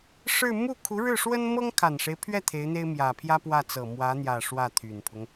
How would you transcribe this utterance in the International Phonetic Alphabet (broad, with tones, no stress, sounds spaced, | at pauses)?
ʂ ɻ̩˥˧ m u˥˩ kʰ u˧˥ ɻ ɻ̩˥˩ ʂ w ə˥ n m ɤ˥ ŋ kʰ a˨˩ n ʂ e˦ ɪ̯ pʰ ɥ ɛ˥˩ t̪ʰ e˧˥ ɪ̯ n̪ e˥ ɪ̯ m j ä˨˩ pʰ j ä˥ p w ä˥˩ t͡s ɤ˨˩ m w ä˧˥ n̪ j ä˨˩ ʂ w ä˥˩ t̪ʰ y˨˩ n pʰ ʊ˦ ŋ